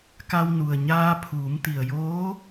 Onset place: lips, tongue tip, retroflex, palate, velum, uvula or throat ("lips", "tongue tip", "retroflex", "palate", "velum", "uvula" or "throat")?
velum